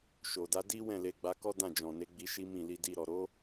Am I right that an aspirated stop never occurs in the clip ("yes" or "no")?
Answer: yes